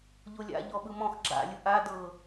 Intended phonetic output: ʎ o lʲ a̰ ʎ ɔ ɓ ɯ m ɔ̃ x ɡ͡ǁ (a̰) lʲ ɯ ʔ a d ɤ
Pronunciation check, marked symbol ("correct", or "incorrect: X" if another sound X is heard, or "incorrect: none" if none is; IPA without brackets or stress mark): correct